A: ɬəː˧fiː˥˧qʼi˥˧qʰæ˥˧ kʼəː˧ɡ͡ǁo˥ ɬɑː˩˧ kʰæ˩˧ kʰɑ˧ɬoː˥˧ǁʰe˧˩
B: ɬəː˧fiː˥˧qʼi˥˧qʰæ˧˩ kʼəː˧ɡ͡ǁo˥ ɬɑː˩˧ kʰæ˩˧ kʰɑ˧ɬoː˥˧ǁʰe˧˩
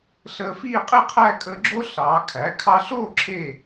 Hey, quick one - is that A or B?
A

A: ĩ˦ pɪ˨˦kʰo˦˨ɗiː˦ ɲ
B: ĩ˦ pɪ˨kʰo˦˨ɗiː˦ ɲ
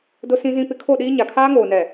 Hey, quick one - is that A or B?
A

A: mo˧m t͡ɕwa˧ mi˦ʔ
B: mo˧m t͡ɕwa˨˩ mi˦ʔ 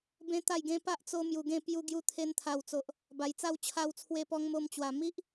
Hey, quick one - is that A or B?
B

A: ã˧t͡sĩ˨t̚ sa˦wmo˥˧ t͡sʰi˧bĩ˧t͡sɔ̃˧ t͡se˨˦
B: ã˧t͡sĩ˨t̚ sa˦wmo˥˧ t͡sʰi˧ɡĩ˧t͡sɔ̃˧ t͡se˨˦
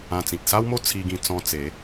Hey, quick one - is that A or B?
B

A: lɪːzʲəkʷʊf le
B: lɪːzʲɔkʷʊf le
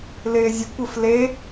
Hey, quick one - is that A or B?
A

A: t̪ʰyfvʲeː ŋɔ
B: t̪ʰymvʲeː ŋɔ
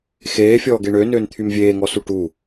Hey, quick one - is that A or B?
B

